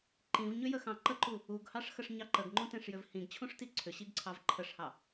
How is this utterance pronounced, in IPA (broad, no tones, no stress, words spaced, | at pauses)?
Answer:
ǃĩvɲʏjəxɑ̃ ǃəǃu | uɡhɑʂxəʂ ɲɑǃəɡŋ͡ǃũtẽʂ jʏvhĩɡt͡ɕʰũʂti ǀʰʏɕiɡǀʰɑv ǃʰəʂhɑ